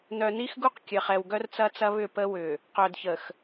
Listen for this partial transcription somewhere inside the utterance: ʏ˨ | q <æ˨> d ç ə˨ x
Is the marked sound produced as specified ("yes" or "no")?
no